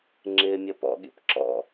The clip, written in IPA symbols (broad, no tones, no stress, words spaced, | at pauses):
ŋ͡ǁɪːmʲʌpɔ̰ ɠḭpǁɔ̰